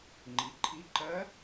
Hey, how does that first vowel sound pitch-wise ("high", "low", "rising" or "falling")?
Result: rising